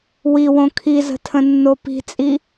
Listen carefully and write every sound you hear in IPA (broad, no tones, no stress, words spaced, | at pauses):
wiwõ kʰizə̤tʰə̃nːo pi̤t͡sʼi